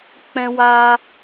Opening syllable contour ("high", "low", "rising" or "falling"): high